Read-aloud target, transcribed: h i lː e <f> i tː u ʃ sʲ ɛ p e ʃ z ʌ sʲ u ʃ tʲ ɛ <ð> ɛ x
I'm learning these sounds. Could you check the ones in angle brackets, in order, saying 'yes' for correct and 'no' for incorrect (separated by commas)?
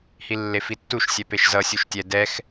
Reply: yes, no